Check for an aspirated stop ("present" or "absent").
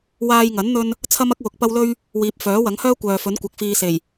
present